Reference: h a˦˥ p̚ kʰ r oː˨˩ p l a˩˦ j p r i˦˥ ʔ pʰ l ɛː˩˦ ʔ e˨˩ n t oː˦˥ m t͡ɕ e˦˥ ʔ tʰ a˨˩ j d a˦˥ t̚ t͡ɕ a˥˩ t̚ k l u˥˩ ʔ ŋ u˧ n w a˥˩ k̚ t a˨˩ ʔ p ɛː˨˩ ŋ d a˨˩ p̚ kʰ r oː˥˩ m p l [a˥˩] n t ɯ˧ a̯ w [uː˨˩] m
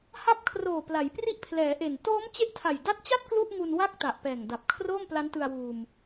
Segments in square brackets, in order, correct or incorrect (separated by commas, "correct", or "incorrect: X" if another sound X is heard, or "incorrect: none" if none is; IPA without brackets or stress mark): incorrect: a˦˥, incorrect: uː˧